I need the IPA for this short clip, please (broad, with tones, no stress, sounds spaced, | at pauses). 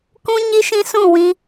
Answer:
k ũ˦ ɲ i˦ ʃ ĩ˦ s ũ˦˨ w ĩ˧